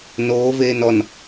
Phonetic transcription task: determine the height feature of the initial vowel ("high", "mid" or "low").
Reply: mid